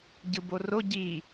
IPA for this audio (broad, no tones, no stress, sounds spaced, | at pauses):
ɟ ɯ b o r o ɟ i